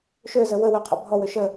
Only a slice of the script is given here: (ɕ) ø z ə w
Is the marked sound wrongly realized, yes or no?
yes